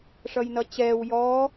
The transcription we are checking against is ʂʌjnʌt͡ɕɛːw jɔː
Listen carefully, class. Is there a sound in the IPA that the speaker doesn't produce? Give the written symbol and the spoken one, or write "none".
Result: none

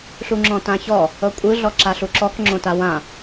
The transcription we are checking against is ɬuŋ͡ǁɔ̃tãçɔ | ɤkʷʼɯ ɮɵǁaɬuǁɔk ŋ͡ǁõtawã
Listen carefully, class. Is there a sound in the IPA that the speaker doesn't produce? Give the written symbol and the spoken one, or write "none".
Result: ɵ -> ɔ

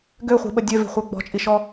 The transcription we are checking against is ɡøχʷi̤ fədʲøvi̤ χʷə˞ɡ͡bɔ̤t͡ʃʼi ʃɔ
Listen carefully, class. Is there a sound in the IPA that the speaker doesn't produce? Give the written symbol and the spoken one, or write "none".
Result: f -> ɓ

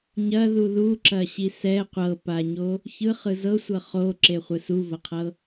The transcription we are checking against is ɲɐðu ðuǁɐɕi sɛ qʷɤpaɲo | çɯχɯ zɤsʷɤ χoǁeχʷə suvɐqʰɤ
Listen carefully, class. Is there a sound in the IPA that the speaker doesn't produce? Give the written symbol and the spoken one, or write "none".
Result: ə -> ɯ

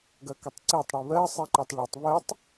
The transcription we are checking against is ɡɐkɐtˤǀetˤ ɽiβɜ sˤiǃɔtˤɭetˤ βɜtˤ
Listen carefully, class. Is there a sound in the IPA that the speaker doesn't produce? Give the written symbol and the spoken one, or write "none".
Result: none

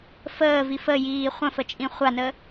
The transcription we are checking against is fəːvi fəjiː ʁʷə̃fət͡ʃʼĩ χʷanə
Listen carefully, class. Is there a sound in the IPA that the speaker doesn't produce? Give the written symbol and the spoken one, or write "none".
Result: ʁʷ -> χʷ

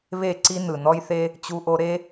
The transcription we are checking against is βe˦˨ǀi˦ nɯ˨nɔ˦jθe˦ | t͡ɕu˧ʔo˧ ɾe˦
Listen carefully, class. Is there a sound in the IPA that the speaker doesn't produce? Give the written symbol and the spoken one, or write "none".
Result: none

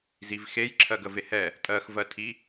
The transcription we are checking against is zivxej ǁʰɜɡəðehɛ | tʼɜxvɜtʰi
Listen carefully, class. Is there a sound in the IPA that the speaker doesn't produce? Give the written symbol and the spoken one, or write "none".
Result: ð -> v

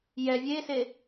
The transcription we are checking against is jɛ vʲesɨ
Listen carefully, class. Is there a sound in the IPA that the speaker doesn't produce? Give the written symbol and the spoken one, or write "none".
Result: ɨ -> e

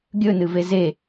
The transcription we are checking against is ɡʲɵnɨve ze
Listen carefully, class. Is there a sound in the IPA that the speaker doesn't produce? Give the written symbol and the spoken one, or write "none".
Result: none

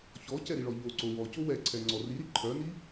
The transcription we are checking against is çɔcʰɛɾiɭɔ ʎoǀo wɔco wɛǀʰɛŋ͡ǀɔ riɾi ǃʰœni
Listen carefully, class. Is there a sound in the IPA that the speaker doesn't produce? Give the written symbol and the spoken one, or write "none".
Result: cʰ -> c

